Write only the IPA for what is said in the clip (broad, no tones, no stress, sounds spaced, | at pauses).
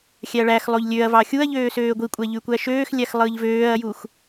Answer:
xʲ æ ɐ̯ ɭ æ x lˠ o ʎ lʲ ø ɐ̯ v ɑ xʲ u ɐ̯ ʎ øː s øː ɡʷ i kʷʼ æ ʎ y kʷ æ ʃ øː x lʲ æ x lˠ ɯː ʎ v øː ɐ̯ j u x